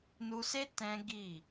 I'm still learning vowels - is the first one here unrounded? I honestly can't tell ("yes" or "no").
no